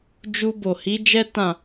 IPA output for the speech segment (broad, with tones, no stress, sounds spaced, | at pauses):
d͡ʒ u˧ b o˨ h i˨˦ d͡ʒ ɛ˦ t ã˦˨